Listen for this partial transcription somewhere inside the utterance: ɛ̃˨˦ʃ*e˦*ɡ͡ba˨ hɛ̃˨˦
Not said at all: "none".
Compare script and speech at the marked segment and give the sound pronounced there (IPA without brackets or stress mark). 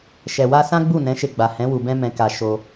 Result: e˧